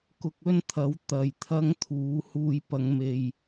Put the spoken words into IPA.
kʊ˧k̚ɵ˥nt̪ʰɐ˨˥w t̪ɐ˨j t̪ʰɐ˥ŋt̪ʰuː˨˥ huː˨j pɐ˨˧ŋme˨j

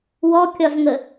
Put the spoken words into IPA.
wɔkʲɒzŋə

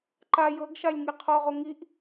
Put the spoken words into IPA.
ǃa jɤɡʃalʲ ŋiqʰɔʁo ŋiʔ

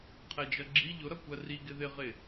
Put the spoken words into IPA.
qʰɛd͡ʒʌɡ͡ǁi ʎʊɾʌ kʷɜri ɡɪðɪʁɪ

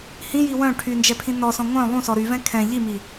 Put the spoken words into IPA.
hĩji wœ̃ ʈʰy nd͡ʒɛpʰĩnɔsɔ̃ ŋʷœ̃ lˠũsɔ ɾyvɛ̃ kʰɛ̃ ʎimi

